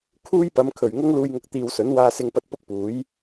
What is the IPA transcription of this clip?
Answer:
kʰ uː˥ j p ɐ˨˧ m kʰ ɵ˨˩ ɥ ŋ ʊ˥ ŋ l uː˧ j ŋ ʊ˧ k̚ t̪ iː˨ w s ɵ˨˥ n w aː˧ s ɪ˧ ŋ p ɐ˧ t̚ p ʊ˥ k̚ p uː˨˥ j

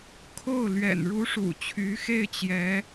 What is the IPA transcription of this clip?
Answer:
kʰ o˥˩ ʊ̯ l ɥ ɛ̰˨˩ n ɻ u˧˥ ʂ ṵ˨˩ t͡ɕʰ y˧˥ x e˥˩ ɪ̯ t͡ɕ j ɛ˧˥

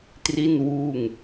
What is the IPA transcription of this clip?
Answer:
t r i˥˩ n w uː˥˩ ŋ

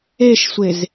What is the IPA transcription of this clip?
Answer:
e ʃ sʷ e z

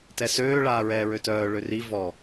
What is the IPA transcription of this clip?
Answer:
t ɛ s øː ɭ aː ɹ ɛː ɹ ø t œː ɭ ø r i v ɔ

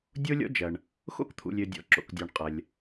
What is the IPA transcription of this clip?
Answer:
dʲ o˥ lʲ ɔ̰˥ d͡ʒ ɐ˩ ɳ | x o̰˥ k t̪ʰ ṵ˩ lʲ ø˩ dʲ ɔ̰˩ ǁ o̰˩ k dʲ ɔ˩ ɳ qʼ ɐ˩ lʲ

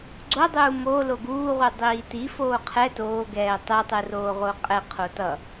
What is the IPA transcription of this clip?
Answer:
ɡ͡ǀ o dˤ uː m o l o ɡ uː ʁ u dˤ iː t i f oː qʰ ɛ t oː ɡ ɛː tˤ ɯ tˤ ɯ r oː ʁ o qʼ ɛ qʰ o t ʌ

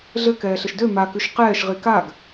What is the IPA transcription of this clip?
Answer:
ɮ ɘ k ɛː ɬ ɘ ʃ d ø m a k ʉ ʃ q ɛː ʃ ʁ i k a ɡ

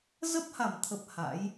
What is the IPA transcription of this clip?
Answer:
z ə˦˥ p̚ h a˧˩ m t̪ʰ ə˨˩ p̚ h a̰˧˥ j

